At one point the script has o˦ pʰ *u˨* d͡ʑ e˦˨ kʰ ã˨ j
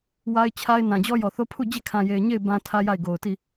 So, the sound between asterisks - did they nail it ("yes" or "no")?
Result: no